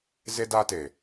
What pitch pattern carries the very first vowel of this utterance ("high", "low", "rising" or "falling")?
high